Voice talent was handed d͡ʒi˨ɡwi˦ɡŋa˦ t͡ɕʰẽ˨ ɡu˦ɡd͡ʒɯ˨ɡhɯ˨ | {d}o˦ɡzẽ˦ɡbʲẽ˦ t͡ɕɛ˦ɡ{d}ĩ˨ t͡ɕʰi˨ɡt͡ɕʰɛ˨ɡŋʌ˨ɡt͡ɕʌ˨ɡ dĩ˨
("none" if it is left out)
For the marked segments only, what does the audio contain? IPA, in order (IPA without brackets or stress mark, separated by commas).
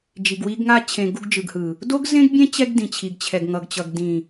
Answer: d, d